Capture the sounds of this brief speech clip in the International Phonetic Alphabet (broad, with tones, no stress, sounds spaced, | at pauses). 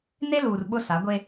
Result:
n e˦ l uː˨ r ɓ ʊ˦ s a˨˦ ɡʷ e˦